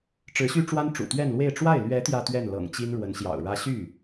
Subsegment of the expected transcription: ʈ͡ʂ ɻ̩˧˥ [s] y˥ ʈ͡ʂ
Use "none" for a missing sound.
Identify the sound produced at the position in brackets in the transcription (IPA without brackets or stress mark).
ɕ